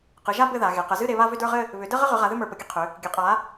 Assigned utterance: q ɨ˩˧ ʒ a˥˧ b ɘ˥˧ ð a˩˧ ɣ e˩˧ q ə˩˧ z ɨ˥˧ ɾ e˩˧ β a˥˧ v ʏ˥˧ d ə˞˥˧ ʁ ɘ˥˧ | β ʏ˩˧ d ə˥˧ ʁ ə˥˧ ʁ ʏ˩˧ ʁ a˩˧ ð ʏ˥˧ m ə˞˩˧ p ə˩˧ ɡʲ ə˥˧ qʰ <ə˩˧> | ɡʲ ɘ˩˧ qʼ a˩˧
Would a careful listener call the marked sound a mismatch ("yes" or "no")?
yes